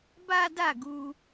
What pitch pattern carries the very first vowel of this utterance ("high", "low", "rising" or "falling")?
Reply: high